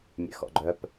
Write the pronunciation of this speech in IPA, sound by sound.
mʲ ɛ̰ x ɔ̰ ɡ͡ǃ œ p

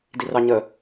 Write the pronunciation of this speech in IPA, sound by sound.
d i r ɑ ɲ ə

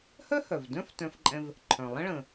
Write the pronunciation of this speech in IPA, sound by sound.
h œ˥ h œ˩ v d œ̃˥ f t œ̃˧ f ǃʼ ɛ̃˧ v | ǃʰ œ̃˩ lˠ ə̃˥ ɭ ə̃˩

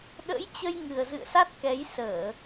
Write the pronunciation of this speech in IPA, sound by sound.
ɗ ə̰ː˧˥ j t͡ɕ ə˧ j ŋ ɨ˨˩ ə̯ z ɨ̰˧˨ ə̯ s a˦˥ t̚ k ɛ˨˦ j s əː˧˩˨

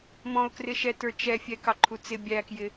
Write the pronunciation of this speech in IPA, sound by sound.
m ɔ̃ ʊ̯ k r ɪ ʃ ɛ t ə˞ t͡ʃ ɛ fʲ ɛ k ɑ ǃʰ u t͡s ɪ bʲ æ k j ɪ

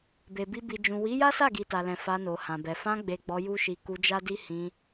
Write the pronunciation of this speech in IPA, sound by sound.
b e˨ b i˧ b i˨ d͡ʒ ũ˨ w i˨˦ j a˦ s a˦˨ ɡ i˨ t a˨ l ɛ̃˨ f a˧ n o˨ h ã˨ b ɛ˨ f ã˧ ɡ͡b e˨ ɡ͡b ɔ˧ j u˦ ʃ i˧ k u˧ d͡ʒ a˦ d i˦ h ĩ˧

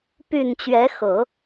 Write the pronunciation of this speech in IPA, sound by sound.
p y˨˩ n t͡ɕ ɥ ɛ˧˥ x ɤ˨˩˦

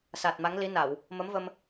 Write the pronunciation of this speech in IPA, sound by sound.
s aː˨˩ t̚ m a˨˦ ŋ l i˨˦ n a˧˩˨ w | m ə˨˦ m v ə˧ m

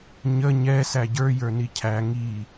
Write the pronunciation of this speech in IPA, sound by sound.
ɲ ə ɲ ɛ s æ ɟ ə˞ j ə˞ n i cʰ æ ŋ i

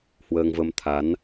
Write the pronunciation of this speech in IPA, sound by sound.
h w əː˧ ŋ v ə˧ m t̪ʰ a˨˦ n

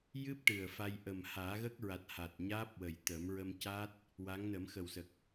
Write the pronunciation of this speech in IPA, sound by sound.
j ɨ˦˥ p̚ ʈ ɨ˨˩ ə̯ f a˧ j ʔ ə˨˩ m h aː˨˩˦ ɣ ə˦˥ k̚ ɹ a˨˩ t̚ h a˨˩ t̚ ɲ aː˦˥ p̚ w ə˨˩ j t̪ ə˨˩˦ m ɹ ə˧ m c a˦˥ t̚ | w a˧˥ ŋ n ə˨˩˦ m x ə˨˩ w s ə˨˩ k̚

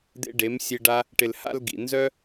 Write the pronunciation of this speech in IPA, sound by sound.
d̪ ḛ˧ ɖ e˨˦ m sʲ e˧ ɖ a˦ | ʈ ɪ˨ l h a̰˧ l ɡ ḭ˨ n z œ˦

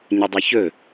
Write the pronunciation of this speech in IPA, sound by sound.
ɲ ʊ dˤ ɵ ç ɵ

